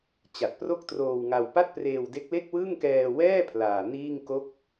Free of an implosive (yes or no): yes